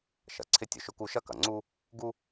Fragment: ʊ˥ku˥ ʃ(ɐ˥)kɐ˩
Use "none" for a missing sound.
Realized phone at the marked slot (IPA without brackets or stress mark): ɐ˥